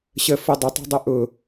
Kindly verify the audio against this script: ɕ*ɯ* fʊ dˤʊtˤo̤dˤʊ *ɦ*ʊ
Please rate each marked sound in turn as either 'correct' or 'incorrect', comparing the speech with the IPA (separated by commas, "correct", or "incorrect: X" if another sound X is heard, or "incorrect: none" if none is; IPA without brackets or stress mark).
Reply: incorrect: ə, incorrect: ʔ